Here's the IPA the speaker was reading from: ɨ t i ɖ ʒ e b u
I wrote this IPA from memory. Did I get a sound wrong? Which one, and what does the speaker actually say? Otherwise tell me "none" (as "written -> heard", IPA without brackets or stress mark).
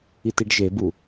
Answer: ɨ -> i